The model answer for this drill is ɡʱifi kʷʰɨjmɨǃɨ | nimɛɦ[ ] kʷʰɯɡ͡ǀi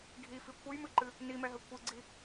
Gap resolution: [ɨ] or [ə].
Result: ə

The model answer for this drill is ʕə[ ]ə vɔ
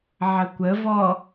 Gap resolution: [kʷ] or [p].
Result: kʷ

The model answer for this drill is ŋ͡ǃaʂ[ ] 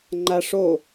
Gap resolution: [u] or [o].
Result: o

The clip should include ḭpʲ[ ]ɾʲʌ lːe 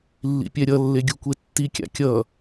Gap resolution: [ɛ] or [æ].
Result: ɛ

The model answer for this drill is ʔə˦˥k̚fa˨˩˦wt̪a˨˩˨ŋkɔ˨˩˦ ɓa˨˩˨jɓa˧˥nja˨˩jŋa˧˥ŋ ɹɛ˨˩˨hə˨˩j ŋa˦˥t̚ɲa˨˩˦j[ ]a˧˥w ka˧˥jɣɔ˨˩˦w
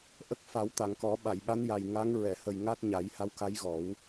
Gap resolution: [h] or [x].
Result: h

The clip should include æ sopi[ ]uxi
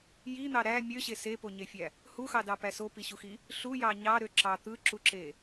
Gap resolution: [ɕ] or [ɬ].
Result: ɕ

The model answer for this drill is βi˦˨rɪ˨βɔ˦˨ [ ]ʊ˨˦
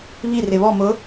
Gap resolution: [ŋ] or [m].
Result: m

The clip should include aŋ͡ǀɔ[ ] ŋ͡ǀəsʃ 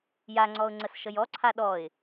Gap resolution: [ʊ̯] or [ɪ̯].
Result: ʊ̯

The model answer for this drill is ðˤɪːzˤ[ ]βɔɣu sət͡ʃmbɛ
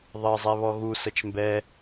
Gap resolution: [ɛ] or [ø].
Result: ɛ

